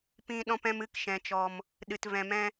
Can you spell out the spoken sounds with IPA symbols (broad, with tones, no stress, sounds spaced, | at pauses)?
p ĩ˧ ɗ ɔ̃˦ p ɛ̃˦ m ɨ˦˨ k ʃ ɛ̃˨ t͡ʃ ɔ˨ m | ɗ ɨ˧ t v ɛ̃˧ m ɛ̃˦